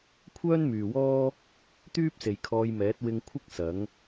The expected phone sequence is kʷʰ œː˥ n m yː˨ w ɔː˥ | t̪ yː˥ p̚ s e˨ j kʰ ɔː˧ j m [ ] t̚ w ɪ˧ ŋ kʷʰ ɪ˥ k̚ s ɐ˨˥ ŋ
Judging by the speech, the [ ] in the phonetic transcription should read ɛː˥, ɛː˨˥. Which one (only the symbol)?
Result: ɛː˨˥